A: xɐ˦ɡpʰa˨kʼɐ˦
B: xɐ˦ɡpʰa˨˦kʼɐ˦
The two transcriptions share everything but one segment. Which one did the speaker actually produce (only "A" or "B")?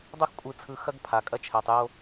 A